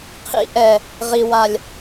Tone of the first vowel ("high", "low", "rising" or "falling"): high